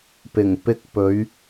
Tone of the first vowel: low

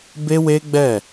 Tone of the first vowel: high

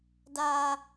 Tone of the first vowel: high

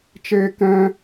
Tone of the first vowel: high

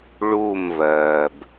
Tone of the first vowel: falling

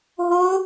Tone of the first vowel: high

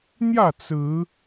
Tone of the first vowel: falling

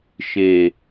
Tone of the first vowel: low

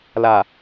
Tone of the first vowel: low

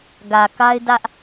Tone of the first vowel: low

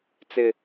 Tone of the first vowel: low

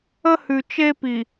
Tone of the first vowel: high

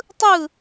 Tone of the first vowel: falling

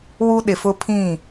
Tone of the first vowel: high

